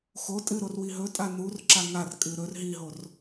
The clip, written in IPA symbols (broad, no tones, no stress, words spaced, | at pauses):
xo tʼɨɾorwi ɦɵtʼa nurǁa ŋarkʼɨ ɾɵr ɦiɦor